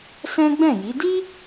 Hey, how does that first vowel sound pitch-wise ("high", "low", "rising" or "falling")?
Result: high